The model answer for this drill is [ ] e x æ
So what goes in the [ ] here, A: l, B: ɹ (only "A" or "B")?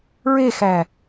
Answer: B